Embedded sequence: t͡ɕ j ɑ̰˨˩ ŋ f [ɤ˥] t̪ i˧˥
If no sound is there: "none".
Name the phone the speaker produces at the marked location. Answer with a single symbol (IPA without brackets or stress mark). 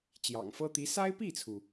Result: ɤ˥